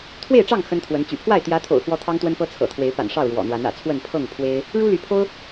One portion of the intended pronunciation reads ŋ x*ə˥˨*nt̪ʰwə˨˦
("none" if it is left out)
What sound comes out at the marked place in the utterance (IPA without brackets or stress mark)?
ə˦